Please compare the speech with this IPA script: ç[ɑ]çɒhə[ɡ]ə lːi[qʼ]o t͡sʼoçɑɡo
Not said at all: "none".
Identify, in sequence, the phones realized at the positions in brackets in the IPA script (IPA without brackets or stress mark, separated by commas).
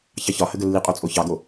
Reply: ɑ, ɡ, qʼ